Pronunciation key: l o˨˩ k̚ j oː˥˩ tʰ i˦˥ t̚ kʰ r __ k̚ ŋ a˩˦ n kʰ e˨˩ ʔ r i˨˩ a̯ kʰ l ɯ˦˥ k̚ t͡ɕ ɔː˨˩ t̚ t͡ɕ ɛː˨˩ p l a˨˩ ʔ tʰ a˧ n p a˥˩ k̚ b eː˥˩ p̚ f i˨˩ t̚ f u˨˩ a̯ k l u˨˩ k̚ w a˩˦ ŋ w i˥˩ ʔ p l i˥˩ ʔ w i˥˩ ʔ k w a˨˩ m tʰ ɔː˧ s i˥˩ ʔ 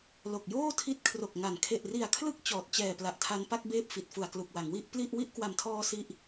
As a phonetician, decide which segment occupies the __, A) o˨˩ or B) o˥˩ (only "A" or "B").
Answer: A